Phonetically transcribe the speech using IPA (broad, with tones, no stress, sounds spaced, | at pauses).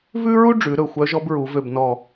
v ʉ˥ ɹ u˥ ɖ͡ʐ ʉ˩˧ ɾ ɵ˧˩ xʷ œ˧˥ ʒ ɔ˧˥ b ɹ u˩˧ v ø˧˩ b n ɔ˧˩